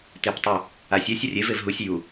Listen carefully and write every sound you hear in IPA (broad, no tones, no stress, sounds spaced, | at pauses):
t e p tˤ u | a sʲ ɛ sʲ ɐ rʲ e v e v ɦ u sʲ j u